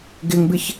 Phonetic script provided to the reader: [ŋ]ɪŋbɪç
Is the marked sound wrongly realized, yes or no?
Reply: yes